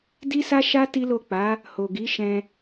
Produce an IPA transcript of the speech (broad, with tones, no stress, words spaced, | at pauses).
di˦sa˦ʃa˦ ti˦lo˦˨ k͡pa˨˦ | ho˨ɡi˨˦ʃɛ̃˧